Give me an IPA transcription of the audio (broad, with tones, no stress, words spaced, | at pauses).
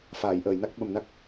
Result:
faː˨˩˨jʔəː˨˩˨jna˦˥k̚ ɓə˨˩mna˦˥k̚